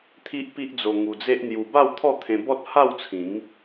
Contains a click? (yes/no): no